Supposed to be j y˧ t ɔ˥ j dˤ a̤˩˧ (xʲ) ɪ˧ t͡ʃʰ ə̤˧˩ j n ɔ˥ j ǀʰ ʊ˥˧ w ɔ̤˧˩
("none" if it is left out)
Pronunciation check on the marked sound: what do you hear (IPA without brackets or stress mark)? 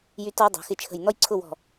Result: x